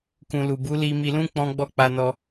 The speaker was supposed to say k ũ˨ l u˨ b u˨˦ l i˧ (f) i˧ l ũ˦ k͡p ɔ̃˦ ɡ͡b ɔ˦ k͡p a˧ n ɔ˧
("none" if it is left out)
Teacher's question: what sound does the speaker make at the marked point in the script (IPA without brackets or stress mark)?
m